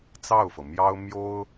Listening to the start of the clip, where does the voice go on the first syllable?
falling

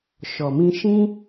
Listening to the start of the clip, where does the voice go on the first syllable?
low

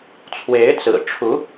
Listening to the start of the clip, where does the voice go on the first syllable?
rising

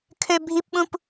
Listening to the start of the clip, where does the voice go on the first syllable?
high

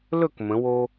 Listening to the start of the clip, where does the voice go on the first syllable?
falling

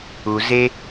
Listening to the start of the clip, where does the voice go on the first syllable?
low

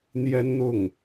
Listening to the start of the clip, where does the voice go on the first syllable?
high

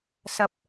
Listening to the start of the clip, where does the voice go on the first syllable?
low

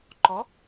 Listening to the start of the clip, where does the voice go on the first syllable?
rising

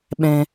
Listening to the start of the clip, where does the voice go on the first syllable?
low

